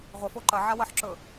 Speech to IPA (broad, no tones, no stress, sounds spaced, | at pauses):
ʁʷ ə f o ǃ ɐ ʕ a w ɐ ħ ǁ ɵ